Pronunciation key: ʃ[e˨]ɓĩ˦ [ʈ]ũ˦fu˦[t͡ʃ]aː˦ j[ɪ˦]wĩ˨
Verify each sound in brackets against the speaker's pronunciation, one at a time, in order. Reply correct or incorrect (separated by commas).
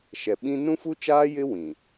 incorrect, incorrect, correct, correct